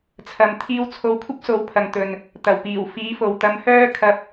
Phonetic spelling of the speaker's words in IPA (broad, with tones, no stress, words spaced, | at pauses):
t͡sʰɐ˧m t̪ʰiː˧w t͡sʰo˧wkʷʰɐ˥p̚so˨˧w pʰɐ˨ŋt̪ɵ˨n | t̪ɐ˨˩wpiː˨˩w fiː˨˥fo˨wt̪ɐ˧mhœː˥ kʰɐ˧p̚